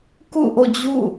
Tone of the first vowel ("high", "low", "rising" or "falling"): falling